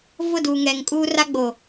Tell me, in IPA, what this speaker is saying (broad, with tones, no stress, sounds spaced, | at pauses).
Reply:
v ʊ˦˨ d uː˨ ŋ ɛ˨ ŋ kʼ uː˦ r a˦ ɡ͡b o˨